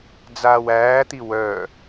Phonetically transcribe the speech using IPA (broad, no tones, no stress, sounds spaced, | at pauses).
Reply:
d͡z aː w æː t̪ i w œ